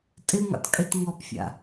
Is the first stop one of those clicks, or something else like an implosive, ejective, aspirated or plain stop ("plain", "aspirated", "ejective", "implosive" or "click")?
ejective